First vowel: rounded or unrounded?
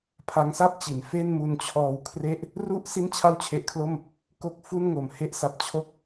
unrounded